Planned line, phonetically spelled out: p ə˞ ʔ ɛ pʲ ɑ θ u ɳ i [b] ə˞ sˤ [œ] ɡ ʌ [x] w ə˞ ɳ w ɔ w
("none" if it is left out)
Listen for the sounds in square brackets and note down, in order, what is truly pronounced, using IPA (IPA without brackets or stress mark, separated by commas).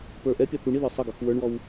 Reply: ð, ə, x